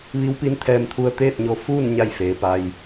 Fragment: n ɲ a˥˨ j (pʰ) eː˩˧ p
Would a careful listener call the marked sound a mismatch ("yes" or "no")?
yes